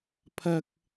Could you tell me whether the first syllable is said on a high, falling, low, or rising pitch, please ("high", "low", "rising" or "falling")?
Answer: low